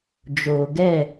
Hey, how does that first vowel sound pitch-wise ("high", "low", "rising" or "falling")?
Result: low